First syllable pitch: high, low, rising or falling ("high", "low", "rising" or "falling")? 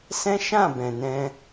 high